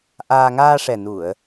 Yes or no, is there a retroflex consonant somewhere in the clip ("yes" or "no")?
yes